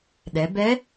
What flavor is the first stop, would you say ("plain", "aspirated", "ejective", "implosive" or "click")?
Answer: implosive